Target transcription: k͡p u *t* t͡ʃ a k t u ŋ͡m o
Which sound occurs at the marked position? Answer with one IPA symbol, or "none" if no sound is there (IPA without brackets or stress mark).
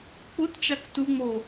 t